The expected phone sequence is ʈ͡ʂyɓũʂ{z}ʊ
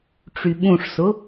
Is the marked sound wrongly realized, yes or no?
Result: yes